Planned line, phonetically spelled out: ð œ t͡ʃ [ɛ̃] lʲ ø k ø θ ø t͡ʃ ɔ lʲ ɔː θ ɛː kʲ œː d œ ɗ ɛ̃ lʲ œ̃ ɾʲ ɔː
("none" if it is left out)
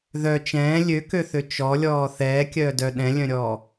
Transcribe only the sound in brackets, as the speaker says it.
ɛ̃ː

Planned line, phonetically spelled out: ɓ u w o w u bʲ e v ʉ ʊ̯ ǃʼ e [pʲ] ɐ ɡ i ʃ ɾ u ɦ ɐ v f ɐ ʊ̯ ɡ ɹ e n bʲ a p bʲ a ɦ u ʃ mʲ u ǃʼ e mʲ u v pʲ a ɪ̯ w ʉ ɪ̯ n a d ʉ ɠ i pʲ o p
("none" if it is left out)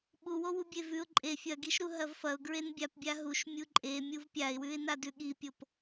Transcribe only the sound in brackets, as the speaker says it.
fʲ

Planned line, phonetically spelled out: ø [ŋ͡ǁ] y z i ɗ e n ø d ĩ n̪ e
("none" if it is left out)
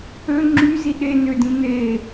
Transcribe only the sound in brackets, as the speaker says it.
ŋ͡ǁ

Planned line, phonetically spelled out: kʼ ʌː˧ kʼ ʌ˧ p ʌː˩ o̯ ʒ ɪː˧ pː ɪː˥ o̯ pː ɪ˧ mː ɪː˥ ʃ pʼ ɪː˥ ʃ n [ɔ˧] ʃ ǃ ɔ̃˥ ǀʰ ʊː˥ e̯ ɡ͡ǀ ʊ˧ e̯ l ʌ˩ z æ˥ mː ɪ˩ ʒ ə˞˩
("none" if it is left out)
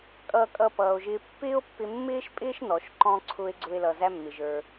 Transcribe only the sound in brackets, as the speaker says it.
ɔ˩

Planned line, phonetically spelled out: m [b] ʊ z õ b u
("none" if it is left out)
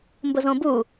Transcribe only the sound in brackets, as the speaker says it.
b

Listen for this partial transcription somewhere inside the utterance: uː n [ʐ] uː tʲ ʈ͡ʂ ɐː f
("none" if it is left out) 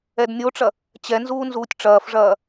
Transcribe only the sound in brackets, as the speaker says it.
z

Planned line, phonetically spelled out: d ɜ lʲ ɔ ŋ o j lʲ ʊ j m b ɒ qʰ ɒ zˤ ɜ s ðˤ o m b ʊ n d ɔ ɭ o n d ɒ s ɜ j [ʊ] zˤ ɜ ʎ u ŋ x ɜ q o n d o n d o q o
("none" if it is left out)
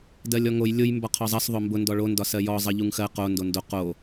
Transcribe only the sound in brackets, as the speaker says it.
ɔ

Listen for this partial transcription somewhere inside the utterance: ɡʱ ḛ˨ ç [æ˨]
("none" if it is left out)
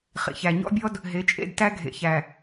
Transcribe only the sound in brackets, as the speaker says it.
æ˨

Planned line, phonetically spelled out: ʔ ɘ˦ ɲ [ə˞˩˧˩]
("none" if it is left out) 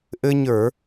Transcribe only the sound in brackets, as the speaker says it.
ə˞˧˩˧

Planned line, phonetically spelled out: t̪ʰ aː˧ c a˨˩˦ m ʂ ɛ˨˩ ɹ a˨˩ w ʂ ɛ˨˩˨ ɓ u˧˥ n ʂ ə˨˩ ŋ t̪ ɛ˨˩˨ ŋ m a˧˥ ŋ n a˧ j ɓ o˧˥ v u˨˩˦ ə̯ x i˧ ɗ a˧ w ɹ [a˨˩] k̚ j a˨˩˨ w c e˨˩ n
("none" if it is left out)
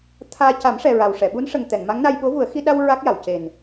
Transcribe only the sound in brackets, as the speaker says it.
a˦˥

